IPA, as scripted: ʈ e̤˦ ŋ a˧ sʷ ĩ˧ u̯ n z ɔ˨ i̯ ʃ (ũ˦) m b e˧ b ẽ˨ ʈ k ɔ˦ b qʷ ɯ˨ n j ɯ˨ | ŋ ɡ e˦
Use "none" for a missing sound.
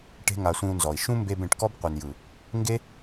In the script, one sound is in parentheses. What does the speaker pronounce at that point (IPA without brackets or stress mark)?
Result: ũ˦